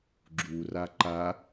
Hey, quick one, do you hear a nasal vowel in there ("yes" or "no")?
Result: no